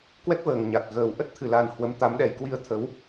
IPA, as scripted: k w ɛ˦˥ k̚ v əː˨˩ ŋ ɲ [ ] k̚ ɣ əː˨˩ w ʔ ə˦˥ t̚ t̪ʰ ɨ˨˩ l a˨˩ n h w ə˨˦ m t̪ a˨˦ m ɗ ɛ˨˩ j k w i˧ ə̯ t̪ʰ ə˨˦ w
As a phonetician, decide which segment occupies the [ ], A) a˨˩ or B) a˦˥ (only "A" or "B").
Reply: A